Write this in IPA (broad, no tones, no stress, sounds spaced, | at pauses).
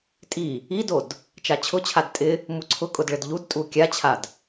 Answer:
tʼ i | i d o d | t͡ʃ a t͡ɕʰ ʊ t͡ɕʰ a d tʼ ɪ | m u ǀʰ ʊ kʼ ʊ d ɭ ɪ d ʎ u d tʼ u kʲ a t͡ɕʰ a d